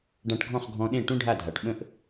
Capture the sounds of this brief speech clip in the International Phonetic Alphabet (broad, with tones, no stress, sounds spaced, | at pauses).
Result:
ɖ ã˧ ʈ ɡʱ ɔ̃˥˩ χ ɡʱ ɔ̃˧ ɗ ẽ˥˩ ʈ ũ˥ ɖʱ a˥˩ dʱ a˩ ʈ ɓ ə̃˥ ʔ